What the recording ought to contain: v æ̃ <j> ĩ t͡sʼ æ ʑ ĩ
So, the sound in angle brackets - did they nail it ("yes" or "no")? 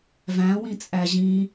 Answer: no